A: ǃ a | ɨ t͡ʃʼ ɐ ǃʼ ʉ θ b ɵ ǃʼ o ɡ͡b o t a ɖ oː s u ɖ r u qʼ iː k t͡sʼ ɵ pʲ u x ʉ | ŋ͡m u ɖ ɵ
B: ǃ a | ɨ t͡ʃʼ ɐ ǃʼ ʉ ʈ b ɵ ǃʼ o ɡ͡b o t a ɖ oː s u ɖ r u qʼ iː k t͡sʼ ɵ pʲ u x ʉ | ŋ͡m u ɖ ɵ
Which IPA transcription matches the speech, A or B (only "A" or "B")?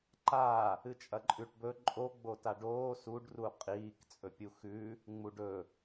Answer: B